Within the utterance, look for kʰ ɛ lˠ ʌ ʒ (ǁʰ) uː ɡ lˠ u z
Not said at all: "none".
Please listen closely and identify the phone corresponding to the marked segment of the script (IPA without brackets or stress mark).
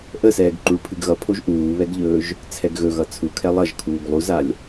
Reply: kʰ